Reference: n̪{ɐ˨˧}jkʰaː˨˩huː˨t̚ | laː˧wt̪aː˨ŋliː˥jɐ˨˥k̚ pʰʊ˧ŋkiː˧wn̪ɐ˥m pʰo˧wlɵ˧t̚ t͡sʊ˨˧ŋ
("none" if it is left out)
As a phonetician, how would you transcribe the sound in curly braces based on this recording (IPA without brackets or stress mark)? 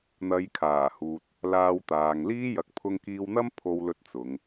ɐ˨˧